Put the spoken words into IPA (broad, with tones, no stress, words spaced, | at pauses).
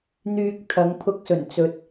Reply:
n̪yː˥k̚ t̪ʰɐ˨˧ŋ pʰʊ˧k̚sɵ˨˩n t͡sɵ˧t̚